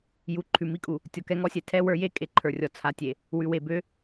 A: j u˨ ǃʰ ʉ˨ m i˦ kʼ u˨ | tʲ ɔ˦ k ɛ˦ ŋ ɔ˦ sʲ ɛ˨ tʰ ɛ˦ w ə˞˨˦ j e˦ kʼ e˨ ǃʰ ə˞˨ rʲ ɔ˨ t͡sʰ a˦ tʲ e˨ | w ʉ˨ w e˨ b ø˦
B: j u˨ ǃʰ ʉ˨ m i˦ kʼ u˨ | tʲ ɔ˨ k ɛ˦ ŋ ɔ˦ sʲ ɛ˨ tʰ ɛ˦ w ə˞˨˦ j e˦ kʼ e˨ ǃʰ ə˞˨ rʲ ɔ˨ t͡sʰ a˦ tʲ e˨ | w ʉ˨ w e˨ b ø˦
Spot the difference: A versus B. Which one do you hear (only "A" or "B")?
B